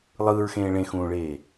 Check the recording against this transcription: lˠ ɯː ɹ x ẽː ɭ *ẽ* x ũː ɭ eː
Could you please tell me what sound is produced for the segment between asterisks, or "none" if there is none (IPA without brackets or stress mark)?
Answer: ẽ